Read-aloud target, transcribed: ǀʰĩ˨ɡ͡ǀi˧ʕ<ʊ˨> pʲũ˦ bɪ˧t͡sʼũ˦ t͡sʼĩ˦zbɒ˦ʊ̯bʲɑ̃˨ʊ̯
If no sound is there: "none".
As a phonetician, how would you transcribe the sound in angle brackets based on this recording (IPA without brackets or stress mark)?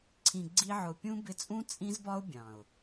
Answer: ʊ˨